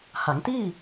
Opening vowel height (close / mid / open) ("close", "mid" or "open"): open